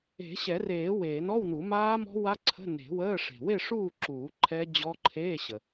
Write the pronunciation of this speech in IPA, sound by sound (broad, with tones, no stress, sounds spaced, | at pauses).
e̤˨˩˦ ɕ ɛ˨˩˦ r eː˨˩˦ w eː˨˩˦ n ɔ˧˥˧ w n u˨˩˦ m aː˦˥ m ɔ̤˦˥ w a˦˥ ǀʰ ə̤˧˥˧ n e̤˨˩˦ w əː˧˥˧ ʂ e̤˨ w e˥˨ ʂ uː˥˨ ǁ uː˨˩˦ ǃʰ ɛ˦˥ d͡ʑ ɔ˦˥ ǃʰ eː˧˥˧ ɕ ə˨